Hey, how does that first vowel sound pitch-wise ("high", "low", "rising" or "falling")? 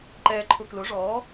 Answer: low